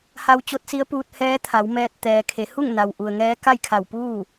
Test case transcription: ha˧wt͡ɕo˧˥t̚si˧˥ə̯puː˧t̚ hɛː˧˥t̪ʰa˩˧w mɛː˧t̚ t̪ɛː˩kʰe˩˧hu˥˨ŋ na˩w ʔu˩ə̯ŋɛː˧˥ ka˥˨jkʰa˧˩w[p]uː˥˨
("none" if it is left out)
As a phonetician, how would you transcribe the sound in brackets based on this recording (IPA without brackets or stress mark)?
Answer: p